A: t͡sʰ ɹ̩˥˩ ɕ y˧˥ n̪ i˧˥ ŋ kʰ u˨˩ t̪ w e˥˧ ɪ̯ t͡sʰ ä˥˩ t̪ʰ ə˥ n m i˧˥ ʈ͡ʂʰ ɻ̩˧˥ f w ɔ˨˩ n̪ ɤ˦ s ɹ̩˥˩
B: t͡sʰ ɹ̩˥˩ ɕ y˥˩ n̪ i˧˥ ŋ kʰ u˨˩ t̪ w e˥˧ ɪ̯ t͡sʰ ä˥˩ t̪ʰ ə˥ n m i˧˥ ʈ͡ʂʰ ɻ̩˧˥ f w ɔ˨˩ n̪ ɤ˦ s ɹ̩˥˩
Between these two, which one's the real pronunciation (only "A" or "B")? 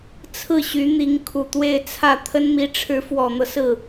A